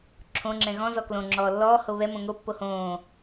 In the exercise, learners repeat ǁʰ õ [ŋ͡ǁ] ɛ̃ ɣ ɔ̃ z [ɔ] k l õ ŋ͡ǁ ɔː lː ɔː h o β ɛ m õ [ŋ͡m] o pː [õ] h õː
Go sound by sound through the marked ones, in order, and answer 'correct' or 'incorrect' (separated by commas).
correct, correct, incorrect, incorrect